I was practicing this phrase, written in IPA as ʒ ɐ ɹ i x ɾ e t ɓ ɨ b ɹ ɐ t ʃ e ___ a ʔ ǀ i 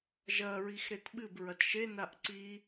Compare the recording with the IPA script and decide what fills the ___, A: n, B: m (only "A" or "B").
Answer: A